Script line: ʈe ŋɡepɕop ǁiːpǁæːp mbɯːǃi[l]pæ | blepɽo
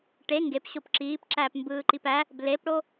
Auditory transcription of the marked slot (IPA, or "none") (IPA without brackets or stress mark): none